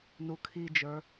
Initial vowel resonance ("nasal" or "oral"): oral